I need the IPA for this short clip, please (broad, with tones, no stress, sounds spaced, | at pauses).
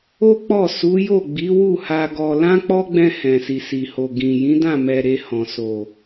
o˦ k͡p ɔ˦˨ s u˨˦ j o˦˨ ɡ͡b i˨˦ w u˦˨ h a˧ ɡ ɔ˧ l ã˦ k͡p ɔ˦ ɡ͡b ɛ̃˧ h ɛ̃˨ s i˨ s i˨ h o˨ ɡ ĩ˨ j ĩ˨˦ d ã˦˨ m ɛ˨ ɾ e˧ h ɔ̃˨ s o˨